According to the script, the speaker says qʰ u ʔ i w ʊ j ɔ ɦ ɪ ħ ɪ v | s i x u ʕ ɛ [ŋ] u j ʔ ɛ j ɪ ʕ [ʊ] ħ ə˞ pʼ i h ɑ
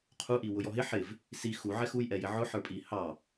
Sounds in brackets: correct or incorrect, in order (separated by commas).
incorrect, correct